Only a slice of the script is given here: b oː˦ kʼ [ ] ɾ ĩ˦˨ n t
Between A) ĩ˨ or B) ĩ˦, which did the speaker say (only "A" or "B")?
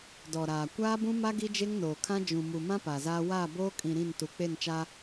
A